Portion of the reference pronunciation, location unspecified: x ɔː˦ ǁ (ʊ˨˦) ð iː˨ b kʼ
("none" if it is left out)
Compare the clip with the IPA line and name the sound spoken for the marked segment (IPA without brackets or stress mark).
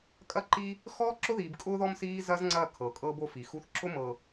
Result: ʊ˦